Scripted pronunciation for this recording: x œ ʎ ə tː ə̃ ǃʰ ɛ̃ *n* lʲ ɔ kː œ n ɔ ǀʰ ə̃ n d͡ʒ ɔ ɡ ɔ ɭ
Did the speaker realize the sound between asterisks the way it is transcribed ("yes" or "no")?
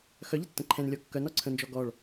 yes